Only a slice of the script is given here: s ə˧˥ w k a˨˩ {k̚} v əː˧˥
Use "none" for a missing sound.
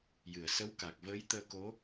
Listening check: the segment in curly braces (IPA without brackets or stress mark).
k̚